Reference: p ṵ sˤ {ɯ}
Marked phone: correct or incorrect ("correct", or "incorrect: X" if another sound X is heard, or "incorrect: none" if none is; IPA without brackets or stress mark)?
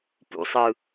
correct